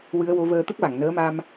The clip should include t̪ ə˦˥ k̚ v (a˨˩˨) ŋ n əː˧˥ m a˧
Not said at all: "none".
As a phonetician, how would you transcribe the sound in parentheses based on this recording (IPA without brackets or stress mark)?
a˨˩˨